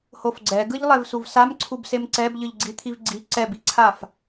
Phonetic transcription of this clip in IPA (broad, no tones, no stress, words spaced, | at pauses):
hofɡ͡ǀɛɡɯʎ lˠɛvsuvsam ǀʰubsemǀɛb ʎɯʎɡ͡ǀit̪ʰivɡ͡ǀi ǀɛbiǀʰaf